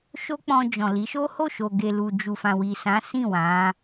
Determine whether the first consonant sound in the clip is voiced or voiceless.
voiceless